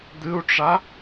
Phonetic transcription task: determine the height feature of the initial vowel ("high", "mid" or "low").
high